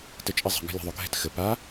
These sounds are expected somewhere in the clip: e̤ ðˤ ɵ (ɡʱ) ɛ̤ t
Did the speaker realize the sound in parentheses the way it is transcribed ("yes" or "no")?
yes